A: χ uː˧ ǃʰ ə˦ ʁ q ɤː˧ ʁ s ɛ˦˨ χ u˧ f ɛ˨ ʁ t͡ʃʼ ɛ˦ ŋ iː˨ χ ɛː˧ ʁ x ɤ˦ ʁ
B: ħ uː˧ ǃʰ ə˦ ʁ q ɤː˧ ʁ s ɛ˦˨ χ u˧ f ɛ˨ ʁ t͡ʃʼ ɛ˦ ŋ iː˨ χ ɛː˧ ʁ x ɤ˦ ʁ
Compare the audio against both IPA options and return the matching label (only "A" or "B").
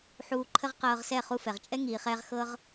B